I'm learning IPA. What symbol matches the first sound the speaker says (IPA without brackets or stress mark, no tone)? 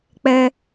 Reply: k͡p